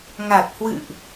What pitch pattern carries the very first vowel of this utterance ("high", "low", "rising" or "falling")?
low